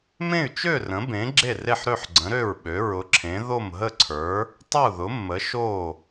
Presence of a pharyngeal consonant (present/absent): present